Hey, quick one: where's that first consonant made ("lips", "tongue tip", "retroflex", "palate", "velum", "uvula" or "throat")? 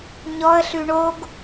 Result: palate